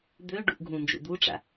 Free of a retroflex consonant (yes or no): no